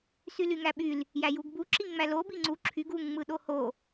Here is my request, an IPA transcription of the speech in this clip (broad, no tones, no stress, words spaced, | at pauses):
sylyŋæɓyl | jæjuɡbu ǁiŋŋ͡mælo biŋ͡ǀu ǁʰyɡ uŋ ŋ͡mɯɗoho